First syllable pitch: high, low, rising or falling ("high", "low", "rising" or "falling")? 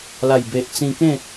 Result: low